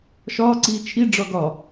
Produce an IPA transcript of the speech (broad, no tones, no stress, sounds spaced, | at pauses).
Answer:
ʃ ɒː ǀ iː t͡ʃʰ i ɖ͡ʐ ɒ ɡ ɒ